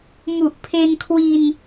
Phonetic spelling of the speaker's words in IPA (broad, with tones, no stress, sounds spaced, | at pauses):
m u˨˩ ʔ pʰ e˧ n kʰ w i˧ n